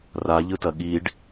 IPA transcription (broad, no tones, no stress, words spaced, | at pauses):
raʎɯtɐ ɠiɖ